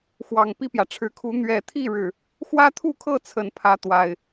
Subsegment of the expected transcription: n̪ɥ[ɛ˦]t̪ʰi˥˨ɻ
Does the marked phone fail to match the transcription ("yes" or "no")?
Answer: yes